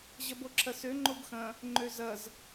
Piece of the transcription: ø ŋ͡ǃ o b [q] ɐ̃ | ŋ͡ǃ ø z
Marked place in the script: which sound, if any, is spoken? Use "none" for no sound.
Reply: x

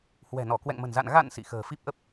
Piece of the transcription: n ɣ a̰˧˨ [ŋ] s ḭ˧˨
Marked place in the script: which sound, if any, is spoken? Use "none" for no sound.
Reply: n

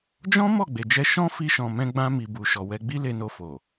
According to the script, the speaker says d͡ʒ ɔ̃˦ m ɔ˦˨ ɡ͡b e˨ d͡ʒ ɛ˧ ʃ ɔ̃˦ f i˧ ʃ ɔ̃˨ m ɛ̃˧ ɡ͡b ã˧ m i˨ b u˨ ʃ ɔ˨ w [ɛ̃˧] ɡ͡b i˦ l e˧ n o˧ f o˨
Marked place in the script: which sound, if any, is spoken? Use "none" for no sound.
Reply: ɛ˧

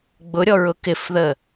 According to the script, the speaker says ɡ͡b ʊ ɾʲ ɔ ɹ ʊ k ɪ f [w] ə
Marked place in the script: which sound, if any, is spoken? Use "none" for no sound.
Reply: ð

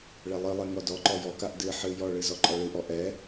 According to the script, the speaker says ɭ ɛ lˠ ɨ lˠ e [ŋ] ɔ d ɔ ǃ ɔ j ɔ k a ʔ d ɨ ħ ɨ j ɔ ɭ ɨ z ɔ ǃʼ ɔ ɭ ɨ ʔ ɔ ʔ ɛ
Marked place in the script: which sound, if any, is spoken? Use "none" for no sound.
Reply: ŋ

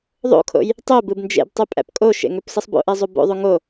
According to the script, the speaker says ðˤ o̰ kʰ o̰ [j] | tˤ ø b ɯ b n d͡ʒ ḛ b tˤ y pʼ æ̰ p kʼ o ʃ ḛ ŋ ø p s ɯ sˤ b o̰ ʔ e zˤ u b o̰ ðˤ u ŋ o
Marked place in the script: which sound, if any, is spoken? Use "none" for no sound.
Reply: j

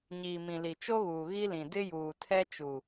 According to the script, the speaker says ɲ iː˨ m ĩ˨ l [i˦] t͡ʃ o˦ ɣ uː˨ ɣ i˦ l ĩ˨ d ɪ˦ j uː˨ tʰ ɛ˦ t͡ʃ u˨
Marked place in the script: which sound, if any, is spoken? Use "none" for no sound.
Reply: i˨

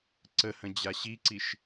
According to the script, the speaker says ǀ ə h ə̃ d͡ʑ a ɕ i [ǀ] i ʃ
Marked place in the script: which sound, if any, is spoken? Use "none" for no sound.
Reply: ǀ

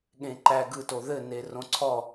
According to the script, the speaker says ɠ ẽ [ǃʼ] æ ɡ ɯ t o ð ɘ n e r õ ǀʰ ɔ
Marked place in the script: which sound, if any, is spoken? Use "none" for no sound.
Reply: ǃ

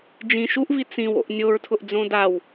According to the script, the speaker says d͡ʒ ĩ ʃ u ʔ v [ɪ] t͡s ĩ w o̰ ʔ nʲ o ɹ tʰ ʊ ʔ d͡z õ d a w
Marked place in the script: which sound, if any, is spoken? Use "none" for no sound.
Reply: i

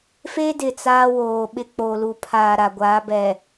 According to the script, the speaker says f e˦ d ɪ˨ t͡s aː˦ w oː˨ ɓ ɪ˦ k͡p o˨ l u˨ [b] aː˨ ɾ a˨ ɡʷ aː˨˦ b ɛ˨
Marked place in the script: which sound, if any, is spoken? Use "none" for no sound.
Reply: pʰ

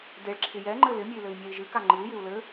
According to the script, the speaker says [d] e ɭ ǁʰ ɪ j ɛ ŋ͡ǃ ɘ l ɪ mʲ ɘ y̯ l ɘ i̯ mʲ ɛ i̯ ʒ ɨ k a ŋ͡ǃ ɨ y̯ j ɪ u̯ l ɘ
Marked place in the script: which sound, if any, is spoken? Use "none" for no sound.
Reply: d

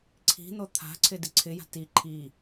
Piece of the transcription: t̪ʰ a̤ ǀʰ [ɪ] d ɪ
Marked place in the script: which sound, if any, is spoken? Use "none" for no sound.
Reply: ɪ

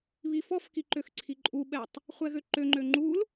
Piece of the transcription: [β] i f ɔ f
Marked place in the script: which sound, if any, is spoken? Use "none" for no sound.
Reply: β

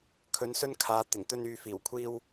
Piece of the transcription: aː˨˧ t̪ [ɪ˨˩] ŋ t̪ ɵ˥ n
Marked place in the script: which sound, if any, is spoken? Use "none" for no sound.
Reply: ɪ˨˩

